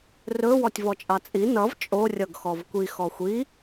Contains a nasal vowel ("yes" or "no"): no